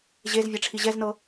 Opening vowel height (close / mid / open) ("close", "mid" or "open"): mid